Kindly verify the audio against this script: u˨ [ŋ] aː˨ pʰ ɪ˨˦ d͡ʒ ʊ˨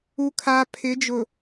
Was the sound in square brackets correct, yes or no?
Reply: no